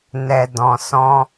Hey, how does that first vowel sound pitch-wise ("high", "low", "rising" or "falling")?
low